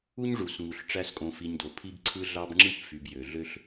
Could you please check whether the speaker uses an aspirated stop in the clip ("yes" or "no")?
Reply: yes